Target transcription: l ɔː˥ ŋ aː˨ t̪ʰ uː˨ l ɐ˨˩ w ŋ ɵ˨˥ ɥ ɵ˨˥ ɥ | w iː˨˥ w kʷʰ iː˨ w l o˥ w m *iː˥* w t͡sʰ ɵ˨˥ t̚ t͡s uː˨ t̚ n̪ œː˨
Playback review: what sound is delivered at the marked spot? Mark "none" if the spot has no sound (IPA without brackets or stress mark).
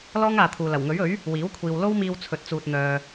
iː˧